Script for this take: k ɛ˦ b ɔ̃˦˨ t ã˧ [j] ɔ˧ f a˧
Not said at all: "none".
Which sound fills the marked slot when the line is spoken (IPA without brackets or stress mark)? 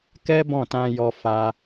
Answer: j